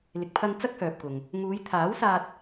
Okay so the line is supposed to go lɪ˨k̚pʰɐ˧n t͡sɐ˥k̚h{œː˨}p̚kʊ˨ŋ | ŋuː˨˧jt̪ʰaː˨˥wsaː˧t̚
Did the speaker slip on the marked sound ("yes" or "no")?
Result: no